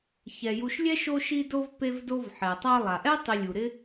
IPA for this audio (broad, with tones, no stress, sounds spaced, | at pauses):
ç ɛ˩ j u˨ ʃ lʲ ɛ˥ ʃ o˦ ʃ i˦ d o˦ v p e˦ v d o˦ v ħ ɛ˩ tˤ a˦ lˠ a˩ ʔ ɛ˥ tˤ i˨ lʲ u˩ ɾ ɪ˦